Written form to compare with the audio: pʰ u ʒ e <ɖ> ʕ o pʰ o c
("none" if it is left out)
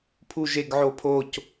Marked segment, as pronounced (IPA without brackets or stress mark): ɡ